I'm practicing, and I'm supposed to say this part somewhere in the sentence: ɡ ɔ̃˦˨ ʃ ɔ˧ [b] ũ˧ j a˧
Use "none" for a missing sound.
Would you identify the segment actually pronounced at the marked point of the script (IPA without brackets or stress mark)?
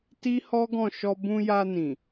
b